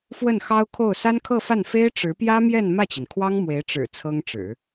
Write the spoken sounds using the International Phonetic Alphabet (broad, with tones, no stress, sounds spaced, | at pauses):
f w ə˥˩ n x ɑ˥ ʊ̯ kʰ o˥˩ ʊ̯ s a˥ n kʰ ɤ˥˧ f a˥˩ n f e˥ ɪ̯ ʈ͡ʂ ɻ̩˧˥ p j ä˥ m j ɛ˥˧ n m ä˥˩ t͡ɕ i˩ n kʰ w ɑ˥ ŋ m w e˧˥ ɪ̯ ʈ͡ʂ ɻ̩˨˩ t͡sʰ ɤ˥ ŋ ʈ͡ʂ ɻ̩˨˩˦